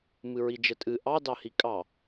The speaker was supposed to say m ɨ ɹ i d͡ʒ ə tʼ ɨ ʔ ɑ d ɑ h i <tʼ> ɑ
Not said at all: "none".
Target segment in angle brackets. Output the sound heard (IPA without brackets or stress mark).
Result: kʼ